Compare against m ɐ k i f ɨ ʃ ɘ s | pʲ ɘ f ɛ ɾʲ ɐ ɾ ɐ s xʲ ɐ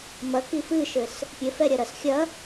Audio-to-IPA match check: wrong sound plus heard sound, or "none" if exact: none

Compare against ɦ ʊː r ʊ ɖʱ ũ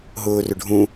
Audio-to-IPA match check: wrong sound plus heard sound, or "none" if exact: none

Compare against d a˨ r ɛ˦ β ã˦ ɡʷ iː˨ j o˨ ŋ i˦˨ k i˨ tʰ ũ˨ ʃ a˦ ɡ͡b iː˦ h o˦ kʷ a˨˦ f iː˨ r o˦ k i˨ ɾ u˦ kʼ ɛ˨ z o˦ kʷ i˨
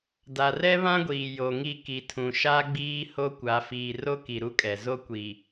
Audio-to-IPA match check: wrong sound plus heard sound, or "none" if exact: none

